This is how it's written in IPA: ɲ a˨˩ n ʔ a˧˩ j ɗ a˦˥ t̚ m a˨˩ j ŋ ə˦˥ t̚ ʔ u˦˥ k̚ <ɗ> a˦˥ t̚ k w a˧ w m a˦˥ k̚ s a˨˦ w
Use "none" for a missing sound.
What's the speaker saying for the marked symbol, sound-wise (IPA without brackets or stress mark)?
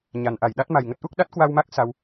ɗ